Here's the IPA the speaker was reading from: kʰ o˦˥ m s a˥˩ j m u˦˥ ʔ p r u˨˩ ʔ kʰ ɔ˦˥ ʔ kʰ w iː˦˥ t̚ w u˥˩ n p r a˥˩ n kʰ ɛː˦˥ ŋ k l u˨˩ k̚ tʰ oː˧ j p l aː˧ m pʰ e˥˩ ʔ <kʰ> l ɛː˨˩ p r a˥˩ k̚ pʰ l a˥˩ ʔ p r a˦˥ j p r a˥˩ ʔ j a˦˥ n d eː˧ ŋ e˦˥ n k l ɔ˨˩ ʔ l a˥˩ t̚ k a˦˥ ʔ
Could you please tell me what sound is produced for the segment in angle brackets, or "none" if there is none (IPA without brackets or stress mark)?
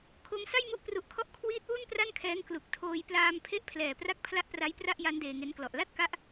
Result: pʰ